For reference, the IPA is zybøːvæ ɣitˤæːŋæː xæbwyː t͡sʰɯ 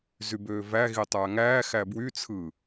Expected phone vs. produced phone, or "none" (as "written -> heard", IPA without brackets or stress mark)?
yː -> y